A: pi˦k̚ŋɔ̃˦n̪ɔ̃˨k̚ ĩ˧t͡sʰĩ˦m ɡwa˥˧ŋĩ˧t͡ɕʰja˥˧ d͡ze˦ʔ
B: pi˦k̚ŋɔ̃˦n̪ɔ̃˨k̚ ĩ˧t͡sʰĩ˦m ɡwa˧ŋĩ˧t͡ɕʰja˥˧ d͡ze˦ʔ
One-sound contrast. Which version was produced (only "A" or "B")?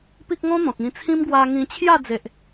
B